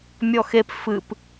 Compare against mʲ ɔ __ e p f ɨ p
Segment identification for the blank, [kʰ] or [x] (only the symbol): x